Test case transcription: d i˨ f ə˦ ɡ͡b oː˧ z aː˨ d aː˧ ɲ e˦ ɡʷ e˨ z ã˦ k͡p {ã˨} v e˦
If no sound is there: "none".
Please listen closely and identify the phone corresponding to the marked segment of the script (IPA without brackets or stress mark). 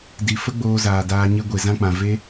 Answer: ã˨